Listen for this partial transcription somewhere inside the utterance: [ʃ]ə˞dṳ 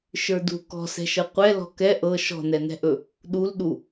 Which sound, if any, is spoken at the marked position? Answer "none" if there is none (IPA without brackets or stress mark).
ʃ